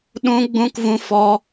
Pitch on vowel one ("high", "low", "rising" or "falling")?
high